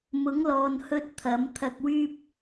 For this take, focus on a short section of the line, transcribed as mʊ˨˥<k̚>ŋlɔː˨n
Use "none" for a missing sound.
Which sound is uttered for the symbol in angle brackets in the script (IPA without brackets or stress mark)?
none